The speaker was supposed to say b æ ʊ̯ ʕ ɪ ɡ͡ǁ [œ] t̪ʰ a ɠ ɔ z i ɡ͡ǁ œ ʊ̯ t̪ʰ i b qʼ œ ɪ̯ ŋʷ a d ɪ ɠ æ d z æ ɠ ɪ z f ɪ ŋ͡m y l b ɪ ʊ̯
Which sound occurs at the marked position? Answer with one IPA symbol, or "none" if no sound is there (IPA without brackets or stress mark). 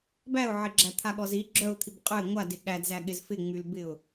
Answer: æ